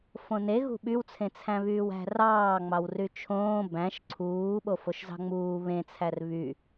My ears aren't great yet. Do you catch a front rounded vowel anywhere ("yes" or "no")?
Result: yes